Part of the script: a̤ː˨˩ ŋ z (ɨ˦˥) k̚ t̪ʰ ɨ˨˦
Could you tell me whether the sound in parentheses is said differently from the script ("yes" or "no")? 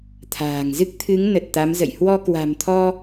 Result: no